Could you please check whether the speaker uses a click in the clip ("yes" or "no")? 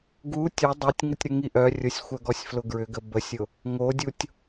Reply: no